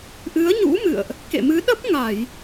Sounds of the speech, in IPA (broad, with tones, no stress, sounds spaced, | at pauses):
ʔ ɨ˨˦ ə̯ ɲ ṵ˧˥ m ɨ̰˧˨ ə̯ ʔ | k ḛ˧˨ m ɨ˨˦ ɗ ə˦˥ p̚ ŋ a˧˩˨ j